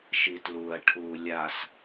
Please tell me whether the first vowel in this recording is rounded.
no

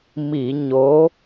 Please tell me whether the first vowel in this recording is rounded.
no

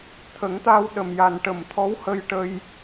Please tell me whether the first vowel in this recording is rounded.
no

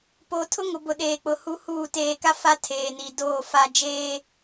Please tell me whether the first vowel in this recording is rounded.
yes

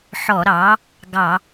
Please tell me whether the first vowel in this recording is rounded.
yes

